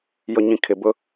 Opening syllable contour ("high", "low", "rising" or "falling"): low